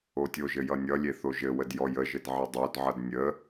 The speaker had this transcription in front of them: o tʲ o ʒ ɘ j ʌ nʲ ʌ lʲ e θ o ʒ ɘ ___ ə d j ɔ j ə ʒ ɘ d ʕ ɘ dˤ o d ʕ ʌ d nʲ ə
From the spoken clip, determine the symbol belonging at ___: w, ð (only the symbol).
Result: w